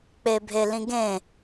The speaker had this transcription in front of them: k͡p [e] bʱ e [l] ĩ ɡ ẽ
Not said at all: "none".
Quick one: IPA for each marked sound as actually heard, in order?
e, l

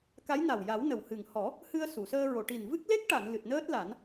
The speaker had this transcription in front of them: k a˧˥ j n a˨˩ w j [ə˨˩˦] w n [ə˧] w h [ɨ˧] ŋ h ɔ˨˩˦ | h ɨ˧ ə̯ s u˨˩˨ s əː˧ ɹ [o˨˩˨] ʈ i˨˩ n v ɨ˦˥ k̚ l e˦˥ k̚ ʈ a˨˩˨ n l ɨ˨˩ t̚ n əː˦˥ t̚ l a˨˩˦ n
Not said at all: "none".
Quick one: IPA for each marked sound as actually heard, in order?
a˨˩˦, ə˨˩, ɨ˨˩, o˨˩˨

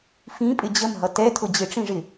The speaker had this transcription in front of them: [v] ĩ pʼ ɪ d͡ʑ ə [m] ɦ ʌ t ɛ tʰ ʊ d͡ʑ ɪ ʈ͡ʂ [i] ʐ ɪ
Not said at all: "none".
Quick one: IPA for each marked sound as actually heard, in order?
f, m, ĩ

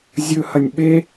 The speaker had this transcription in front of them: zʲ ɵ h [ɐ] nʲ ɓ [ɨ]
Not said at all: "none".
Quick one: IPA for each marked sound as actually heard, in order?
ɐ, e

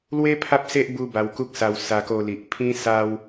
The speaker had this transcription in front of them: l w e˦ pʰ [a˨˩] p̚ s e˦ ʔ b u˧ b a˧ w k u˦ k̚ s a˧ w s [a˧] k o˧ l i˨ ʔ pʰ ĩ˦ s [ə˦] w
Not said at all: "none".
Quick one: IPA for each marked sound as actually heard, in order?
a˦, a˧, a˦

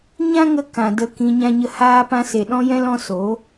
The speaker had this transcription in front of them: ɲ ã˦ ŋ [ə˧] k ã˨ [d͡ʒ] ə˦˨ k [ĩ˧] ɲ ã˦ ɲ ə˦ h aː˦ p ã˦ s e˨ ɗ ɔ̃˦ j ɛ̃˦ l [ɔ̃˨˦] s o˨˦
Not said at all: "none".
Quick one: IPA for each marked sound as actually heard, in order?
ə˧, d, ĩ˧, ɔ̃˦

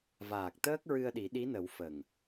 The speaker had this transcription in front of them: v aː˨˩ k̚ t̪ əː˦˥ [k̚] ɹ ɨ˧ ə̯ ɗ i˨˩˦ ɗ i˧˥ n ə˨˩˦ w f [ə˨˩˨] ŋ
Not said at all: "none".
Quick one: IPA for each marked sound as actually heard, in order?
k̚, ə˨˩

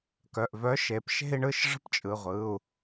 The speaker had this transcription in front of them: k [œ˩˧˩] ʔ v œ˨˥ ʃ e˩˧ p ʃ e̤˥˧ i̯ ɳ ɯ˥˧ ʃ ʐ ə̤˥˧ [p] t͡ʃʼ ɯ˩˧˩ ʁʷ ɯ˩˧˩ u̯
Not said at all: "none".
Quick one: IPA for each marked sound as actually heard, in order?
œ˩˧˩, p

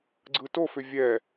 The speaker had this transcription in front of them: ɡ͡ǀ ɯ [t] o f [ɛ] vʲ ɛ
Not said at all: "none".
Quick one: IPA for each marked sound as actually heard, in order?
t, ʏ

